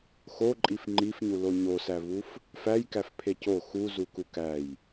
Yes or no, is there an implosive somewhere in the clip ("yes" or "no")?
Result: no